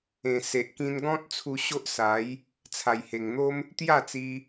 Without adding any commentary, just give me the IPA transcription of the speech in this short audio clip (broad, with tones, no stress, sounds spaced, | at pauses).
ẽ˨˩ s e˨ ʔ k ĩ˧ n ɡ ɔ̃˦ t̚ t͡sʰ u˧ ɕ o˦ ʔ s a˨˦ j | t͡sʰ a˨˩ j h e˨˩ ŋ n̪ o˦ m | t̪ j a˥˧ t͡s i˧